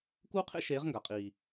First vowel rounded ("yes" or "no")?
yes